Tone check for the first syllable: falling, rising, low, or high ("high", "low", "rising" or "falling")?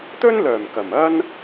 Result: high